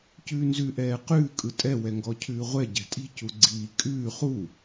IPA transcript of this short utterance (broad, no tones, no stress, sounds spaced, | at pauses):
c ʉː n z ʉ ʔ ɛː q ʉː kʼ ɯ tʼ ɛ w ɛ ŋ ɡ ɔ cʰ ʉː ʁʷ ɛ ɟ ɛ̤ tʼ i̤ c u ɡ͡ǀ iː kʼ ʉː χ u